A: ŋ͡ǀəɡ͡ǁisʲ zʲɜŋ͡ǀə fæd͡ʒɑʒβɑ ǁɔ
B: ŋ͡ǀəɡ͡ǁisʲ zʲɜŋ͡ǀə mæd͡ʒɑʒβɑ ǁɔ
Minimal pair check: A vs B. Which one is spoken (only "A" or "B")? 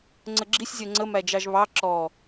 B